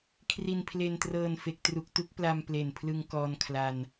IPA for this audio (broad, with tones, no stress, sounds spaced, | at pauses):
kʰ r i˧ n pʰ l e˧ n t r ɤː˧ n f e˦˥ k̚ t r u˦˥ k̚ t u˦˥ k̚ p l a˧ m p l e˨˩ n pʰ l ɯ˧ ŋ k ɔː˧ n kʰ l a˧ n